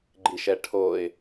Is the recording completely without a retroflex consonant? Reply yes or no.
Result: no